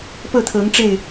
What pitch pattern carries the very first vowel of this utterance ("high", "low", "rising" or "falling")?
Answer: falling